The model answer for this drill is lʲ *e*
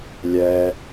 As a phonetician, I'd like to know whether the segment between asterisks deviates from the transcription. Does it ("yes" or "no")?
yes